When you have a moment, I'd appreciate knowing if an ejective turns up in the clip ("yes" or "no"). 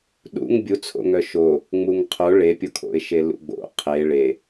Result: no